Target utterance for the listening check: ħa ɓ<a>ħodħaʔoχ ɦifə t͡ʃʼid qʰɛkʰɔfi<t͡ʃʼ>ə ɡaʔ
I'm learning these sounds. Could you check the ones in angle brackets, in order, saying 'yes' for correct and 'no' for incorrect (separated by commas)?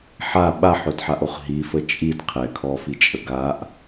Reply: yes, yes